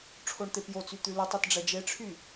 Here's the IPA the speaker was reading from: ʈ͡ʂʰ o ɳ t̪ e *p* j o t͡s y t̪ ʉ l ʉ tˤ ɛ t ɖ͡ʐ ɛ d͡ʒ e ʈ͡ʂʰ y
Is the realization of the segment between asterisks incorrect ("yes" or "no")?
no